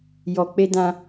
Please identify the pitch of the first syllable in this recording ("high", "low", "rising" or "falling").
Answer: low